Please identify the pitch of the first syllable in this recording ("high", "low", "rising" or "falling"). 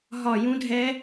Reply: falling